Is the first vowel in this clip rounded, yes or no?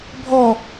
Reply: yes